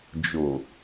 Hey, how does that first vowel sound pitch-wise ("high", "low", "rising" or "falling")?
low